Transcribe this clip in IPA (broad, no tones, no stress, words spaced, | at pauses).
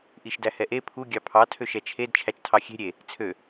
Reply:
ʔiʃdæhɛʔe pʰu ɡʲɑpʰɑ tʰøʃɛt͡ʃʰed t͡ʃʰæt͡ʃtʰɑxʲe̤ ɾʲe | t͡sʰø